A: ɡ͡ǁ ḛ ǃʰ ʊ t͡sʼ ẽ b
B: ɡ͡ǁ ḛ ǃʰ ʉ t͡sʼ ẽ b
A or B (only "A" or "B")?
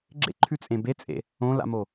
B